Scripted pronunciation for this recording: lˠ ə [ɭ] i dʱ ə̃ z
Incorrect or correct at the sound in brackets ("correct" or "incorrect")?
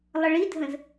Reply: correct